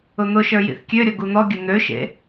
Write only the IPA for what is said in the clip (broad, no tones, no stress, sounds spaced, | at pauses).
ʊ n̪ ʊ ʃ ə˞ j ḭ θ kʲ ø ɾʲ ɔ ɡ u n̪ ɔ ɡʲ ə n̪ ø ʃ ḛ